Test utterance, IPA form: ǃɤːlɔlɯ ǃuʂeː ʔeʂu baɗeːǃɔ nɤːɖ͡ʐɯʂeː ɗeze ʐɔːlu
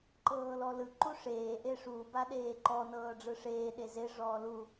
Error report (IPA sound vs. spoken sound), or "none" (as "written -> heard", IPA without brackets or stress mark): none